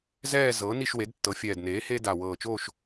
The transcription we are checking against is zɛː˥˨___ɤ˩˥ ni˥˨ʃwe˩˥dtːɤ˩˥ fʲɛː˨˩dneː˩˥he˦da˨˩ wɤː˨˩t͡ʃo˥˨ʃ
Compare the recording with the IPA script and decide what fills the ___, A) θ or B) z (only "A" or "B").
B